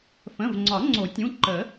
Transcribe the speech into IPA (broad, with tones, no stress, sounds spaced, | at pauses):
f ə̃˩˧˩ v ŋ͡ǀ ɒ˨˩˦ ŋ͡ǀ o˨˩˦ tʲ ũ˩˧˩ ǃ ə˨˩˦